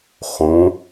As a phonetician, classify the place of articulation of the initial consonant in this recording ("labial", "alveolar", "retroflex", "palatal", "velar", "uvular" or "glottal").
uvular